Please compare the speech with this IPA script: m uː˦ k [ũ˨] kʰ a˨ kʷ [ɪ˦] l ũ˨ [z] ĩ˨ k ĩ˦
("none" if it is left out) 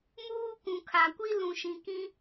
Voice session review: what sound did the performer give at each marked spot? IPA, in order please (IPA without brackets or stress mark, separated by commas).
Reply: ũ˨, i˦, ʃ